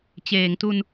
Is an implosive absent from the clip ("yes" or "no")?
yes